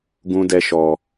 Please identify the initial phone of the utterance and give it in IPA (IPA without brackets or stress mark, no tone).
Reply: ɡ